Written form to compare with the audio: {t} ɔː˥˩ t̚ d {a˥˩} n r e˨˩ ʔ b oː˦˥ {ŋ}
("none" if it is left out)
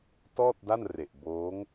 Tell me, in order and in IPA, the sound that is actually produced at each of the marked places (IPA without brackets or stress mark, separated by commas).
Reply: t, a˥˩, ŋ